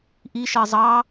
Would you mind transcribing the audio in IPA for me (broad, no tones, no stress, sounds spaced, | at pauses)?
ʔ i ʃ ɜ zˤ ɑ